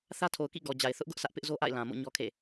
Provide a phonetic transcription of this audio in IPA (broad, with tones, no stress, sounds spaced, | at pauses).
θ ä˦ tʰ o˨ ʊ̯ k ḭ˦˨ ɡ ɔ˨ d͡ʑ a˨ ɪ̯ θ ʊ˦ ʔ ɡ ʊ˦ ʔ sʰ ä˦ ʔ p ɪ˦ ʔ z o˦ ʔ a̰˦˨ ɪ̯ l ã˨ m o̰˦˨ ɲ ɔ˦ kʰ ḛ˦˨